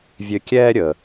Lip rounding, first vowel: rounded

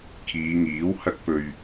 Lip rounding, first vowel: unrounded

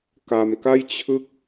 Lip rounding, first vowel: unrounded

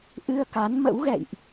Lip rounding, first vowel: unrounded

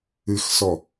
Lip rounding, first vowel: unrounded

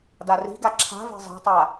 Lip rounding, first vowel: unrounded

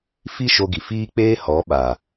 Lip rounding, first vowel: unrounded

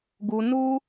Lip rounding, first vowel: rounded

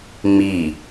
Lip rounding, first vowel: unrounded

